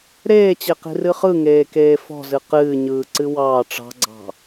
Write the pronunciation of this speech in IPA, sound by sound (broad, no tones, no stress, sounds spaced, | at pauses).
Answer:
ɾ eː t͡ɕ e q i̤ r ɨ χ ɯ ŋ eː k eː f ɔ̤ z ɨ q ɨː ɲ ɯː ǀ ɨ w ɑː ʈ͡ʂ ɑ̤ ɡ͡ǀ ɑ̤